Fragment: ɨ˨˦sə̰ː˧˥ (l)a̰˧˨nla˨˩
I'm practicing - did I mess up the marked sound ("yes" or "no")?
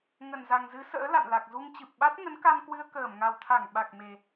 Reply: no